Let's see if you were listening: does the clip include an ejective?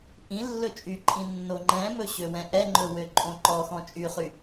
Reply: yes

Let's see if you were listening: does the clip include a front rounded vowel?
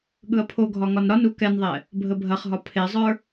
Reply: no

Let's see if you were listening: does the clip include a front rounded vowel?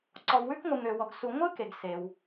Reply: yes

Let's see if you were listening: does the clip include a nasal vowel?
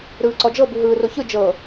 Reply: no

